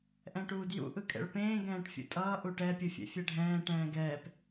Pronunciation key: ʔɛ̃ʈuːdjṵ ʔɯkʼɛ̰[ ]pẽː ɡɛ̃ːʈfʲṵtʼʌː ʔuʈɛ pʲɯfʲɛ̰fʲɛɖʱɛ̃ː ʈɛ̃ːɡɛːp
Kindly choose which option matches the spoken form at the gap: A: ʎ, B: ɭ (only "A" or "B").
B